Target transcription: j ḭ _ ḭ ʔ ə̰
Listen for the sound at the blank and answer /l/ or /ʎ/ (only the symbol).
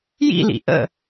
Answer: l